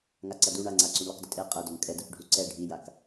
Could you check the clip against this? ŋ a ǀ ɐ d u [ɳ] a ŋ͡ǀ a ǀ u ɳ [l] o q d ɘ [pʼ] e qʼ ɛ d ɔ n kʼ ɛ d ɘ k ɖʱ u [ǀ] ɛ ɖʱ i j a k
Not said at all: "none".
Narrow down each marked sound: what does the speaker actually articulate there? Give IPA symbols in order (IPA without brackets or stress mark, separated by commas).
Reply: ɳ, l, tʼ, ǀ